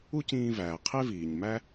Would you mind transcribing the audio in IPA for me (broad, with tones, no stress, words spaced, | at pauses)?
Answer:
u˥cĩː˧væː˩ qʰe˥viː˩ɲmæ˥